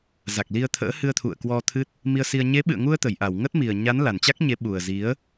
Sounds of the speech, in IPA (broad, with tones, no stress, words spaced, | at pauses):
za˨˩k̚li˧ə̯t̪ʰə̰ː˧˥ hɨ˧ə̯t̪ʰṵ˧˨ə̯ kwɔ˧t̪ʰɨ˦˥t̚ | mi˧ə̯si˧ə̯ ɲe˨˦ɓɨ̰˧˨ə̯ŋu˧ə̯t̪ə˧˩j ʔa˧˩wŋə˦˥t̚mi˨˩ə̯ɲa˨˦n la˨˩nt͡ɕa˦˥k̚ɲe˨˦ ɓu˨˩ə̯zi˨˦ə̯